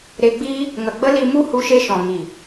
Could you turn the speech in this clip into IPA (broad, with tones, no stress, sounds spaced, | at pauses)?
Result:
ɾ e˧ ɡ͡b i˦ | ŋ ə˨ ɡ͡b ə˦ l i˧ m u˦ h u˧ ʃ e˧ ʃ ɔ̃˨ ŋ i˨